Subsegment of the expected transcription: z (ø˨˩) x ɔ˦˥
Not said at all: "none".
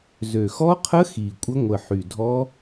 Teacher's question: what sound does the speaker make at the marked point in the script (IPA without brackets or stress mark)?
ø˨˩